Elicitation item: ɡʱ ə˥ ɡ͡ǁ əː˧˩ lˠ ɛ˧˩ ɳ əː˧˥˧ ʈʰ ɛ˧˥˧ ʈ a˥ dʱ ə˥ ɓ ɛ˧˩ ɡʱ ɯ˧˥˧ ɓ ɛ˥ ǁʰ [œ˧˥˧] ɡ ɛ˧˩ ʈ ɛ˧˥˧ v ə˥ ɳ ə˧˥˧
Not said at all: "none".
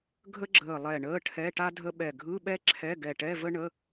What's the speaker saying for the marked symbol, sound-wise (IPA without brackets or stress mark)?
ɛ˧˥˧